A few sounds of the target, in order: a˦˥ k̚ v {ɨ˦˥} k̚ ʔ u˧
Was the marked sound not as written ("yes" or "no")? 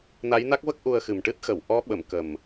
yes